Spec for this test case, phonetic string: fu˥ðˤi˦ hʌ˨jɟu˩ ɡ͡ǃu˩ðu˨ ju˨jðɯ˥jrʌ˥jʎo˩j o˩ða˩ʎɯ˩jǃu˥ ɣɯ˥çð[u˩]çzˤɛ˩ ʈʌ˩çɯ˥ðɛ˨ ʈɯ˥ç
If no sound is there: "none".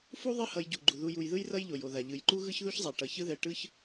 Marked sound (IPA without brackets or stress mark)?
u˥